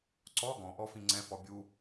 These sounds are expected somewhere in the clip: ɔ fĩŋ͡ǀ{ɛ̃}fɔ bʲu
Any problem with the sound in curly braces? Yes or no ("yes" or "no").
no